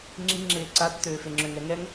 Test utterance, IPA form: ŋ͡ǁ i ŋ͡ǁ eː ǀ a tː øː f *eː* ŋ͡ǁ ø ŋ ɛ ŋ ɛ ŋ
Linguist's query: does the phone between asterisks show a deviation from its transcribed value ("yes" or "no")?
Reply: yes